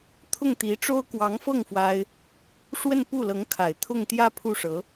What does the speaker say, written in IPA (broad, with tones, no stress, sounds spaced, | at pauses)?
t̪ʰ ʊ˥˩ ŋ t̪ i˧˥ ʈ͡ʂ o˥ ʊ̯ k w ɑ˧˥ ŋ f ɤ˥˩ ŋ f w a˥ ɪ̯ | ʂ w ə˥˧ n p u˥˩ l ɤ˧˥ ŋ kʰ a˨˩ ɪ̯ t̪ʰ ʊ˥˧ ŋ t̪ j ä˥˧ pʰ u˥˩ ʂ ɤ˧˥